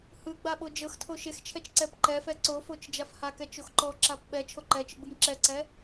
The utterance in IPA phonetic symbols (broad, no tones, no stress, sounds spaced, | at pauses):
h ɯ ɡ͡b a ɓ o d͡ʒ ɤ x tʰ o ʃ e x t͡ʃʰ ɛ t͡ʃ ǀ ɛ p ǃ ɛ f ɛ ǀ o f o t͡ʃ d͡ʒ a f h a k ɛ t͡ʃ o x ǃ ɔ ǁ a p ɓ ɛ t͡ʃʰ o ǃ ɛ t͡ʃ ɯ ɡ͡b ɯ m ǁ ɛ ǀ ɛ